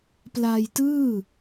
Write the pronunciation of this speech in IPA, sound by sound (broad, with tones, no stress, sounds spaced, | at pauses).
p l aː˧ j t ɯː˥˩